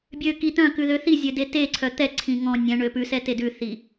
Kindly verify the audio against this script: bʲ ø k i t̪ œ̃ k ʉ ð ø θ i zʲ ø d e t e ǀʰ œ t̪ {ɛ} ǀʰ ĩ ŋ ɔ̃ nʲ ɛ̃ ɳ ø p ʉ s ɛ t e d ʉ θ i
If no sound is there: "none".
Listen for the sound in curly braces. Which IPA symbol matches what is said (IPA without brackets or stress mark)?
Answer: ɛ